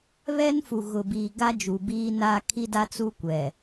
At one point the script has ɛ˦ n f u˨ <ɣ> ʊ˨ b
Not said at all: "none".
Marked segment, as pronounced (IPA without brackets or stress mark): ɣ